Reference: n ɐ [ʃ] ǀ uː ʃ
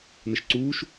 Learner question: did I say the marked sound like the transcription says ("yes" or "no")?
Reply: yes